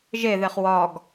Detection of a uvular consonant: present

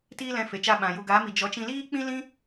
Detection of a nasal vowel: present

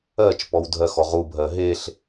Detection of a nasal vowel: absent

